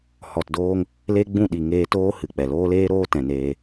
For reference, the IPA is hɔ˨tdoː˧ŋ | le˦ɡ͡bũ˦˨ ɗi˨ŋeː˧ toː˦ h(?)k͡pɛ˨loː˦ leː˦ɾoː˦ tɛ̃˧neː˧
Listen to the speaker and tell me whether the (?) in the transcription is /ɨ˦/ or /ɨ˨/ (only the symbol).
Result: ɨ˨